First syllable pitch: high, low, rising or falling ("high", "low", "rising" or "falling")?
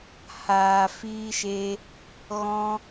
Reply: low